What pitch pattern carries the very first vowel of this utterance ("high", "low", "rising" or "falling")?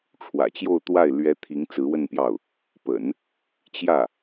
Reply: low